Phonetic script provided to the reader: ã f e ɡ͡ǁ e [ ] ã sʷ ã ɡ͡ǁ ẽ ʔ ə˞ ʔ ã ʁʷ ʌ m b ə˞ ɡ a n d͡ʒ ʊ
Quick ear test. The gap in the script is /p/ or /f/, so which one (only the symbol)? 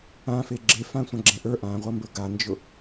f